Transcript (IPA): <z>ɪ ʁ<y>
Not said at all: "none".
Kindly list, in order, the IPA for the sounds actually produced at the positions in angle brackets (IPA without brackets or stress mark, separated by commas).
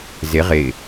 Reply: z, ɪ